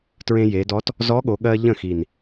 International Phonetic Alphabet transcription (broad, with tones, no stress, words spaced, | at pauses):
tɹẽ˧je˩˧dɔ˧˥t | zɔ˧˥ɠo˩˧ɠɜ˧ ʎə̃˥˩xi˨˩n